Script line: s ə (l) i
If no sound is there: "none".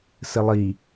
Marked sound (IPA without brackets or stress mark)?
lˠ